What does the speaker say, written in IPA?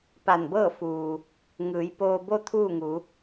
p a˧˩ n b ɤː˥˨ f uː˩ | ŋ ɯː˩˧ j p oː˧ b o˥˨ t̪ʰ uː˥˨ ŋ u˩˧

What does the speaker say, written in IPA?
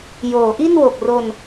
j oː˩˦ ʔ i˥˩ n w o˨˩ k̚ r o˧ n

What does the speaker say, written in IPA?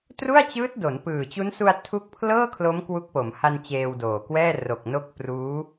t r u˥˩ a̯ t͡ɕ ɯː˦˥ t̚ d o˩˦ n p ɯː˨˩ t͡ɕ u˦˥ n s u˧ a̯ tʰ u˦˥ k̚ pʰ l ɤː˥˩ kʰ l o˦˥ m k w u˦˥ k̚ p o˩˦ m h a˧ n t͡ɕ eː˧ w d oː˨˩ k w ɛː˥˩ r o˨˩ k̚ n o˦˥ k̚ p r uː˦˥

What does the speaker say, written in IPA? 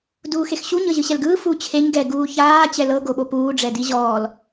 d uː x e x ɕ u ɲ ɤ ʑ ɯ ɕ ɛ l ɡ ɯː f u t͡ɕʰ e ɲ ɡ ɛ ɡ uː ç aː t͡ɕ ɛ l ɤ ɡ o ɓ o p uː ɖ͡ʐ ɛ d i ʑ ɔː l

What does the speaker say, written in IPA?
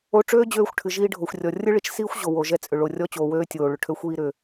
o˧ ʈ͡ʂ øː˥ d͡ʑ øː˧ xʷ ʈʰ ɨ˩ ʒ iː˧ ɖʱ o˩ xʷ rʲ ɔ˩ rʲ ɯ˥ ɭ i˧ t͡ʃ s iː˥ xʷ ʑ o˩ w o˩ ʒ ɛ˧ t͡sʼ ʏ˩ ɭ o˩ rʲ ɔ˧ t͡ɕ oː˩ w øː˧ tʲ oː˩ ɭ ʏ˩ ʈʰ ø˧ xʷ iː˧ ɾ ʏ˩

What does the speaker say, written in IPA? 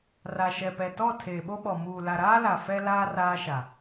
r a˨ ʃ ɛ˨ p ɛ˨ t ɔ˦˨ tʰ eː˨ ɓ o˦ ɓ ɔ˨ m uː˨ l a˨ ɾ aː˦ l a˨ f ɛ˦ l aː˦ r aː˦ ʃ a˨

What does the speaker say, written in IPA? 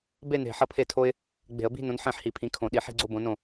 b e˥˧ n e̤˧˩ ħ ʌ˥˩ pʰ e˥˩ tʰ o˥ ɪ̯ | ɡ͡b e̤˧˩˧ ə̯ b i̤˥˧ n õ˨˥ n ħ ẽ˥˩ ħ h i˧˩˧ pʰ ĩ˨˥ kʰ õ˧˩˧ ɗ i˧˩˧ ħ i̤˥˧ ɡ͡ǀ o˥˧ b õ˨˥ n õ˥˩

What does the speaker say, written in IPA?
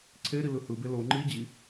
ǀʰ e ɾ i l ɯ h ɯ b e l o ŋ͡ǃ i d͡ʑ i

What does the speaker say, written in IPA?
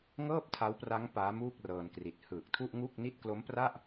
ŋ ɤː˥˩ p̚ tʰ a˦˥ w p r a˦˥ ŋ p aː˦˥ m uː˥˩ k̚ r ɤː˧ n k r i˨˩ t̚ h ɯː˨˩ k̚ tʰ u˥˩ ʔ ŋ u˥˩ k̚ n i˥˩ t̚ k l o˦˥ m p r a˥˩ ʔ

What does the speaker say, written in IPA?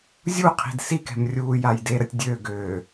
zʲ u qʰ i̤ d s i k ɛ̤ m rʲ uː j a j d e ɾ ə tʲ dʲ ø ɡ ø

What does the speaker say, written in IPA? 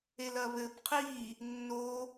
e l ɐ β ɘ b qʰ i | nː o

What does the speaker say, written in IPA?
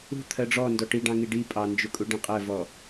ṳ t̪ʰ ɜ ɖ͡ʐ ɔ n d ɔ ʈ i ɖ ɑ̃ ŋ i ɖ i pʼ ɑ n d͡ʒ ʊ kʼ u ɖ ĩ qʼ ɜ v ɔ

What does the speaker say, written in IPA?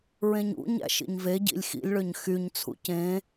ɹ ẽ ɲ ṵ ɲ æ̰ ʃ ḭ ɲ v e ɟ ḭ lʲ x ḭ lʲ ɭ ø ɲ x y ɲ t͡sʰ ṵ c ẽ

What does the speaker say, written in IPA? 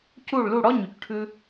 c u˥˩ ɭ l u˥˩ ɽ ɔ˥ ɲ y˩ c ʈʰ ʉ˧

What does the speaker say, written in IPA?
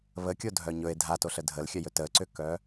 β ə kʲ o dʱ œ ɲ ɵ e̯ dʱ a t o ɬ ə dʱ ə l xʲ œ j ɵ t ə ǀ ʏ k œ

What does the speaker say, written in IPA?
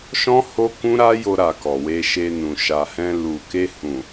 ʃ ɔ̃˦ h o˦ k ũ˦ ɾ a˦ j o˧ ɾ a˨ k ɔ˨ w e˧ ʃ e˧ n ũ˨ ʃ a˨ h ɛ̃˧ l u˨ k e˧ h ũ˨

